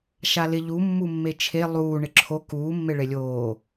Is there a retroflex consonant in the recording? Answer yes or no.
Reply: yes